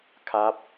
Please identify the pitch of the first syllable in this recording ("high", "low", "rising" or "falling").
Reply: rising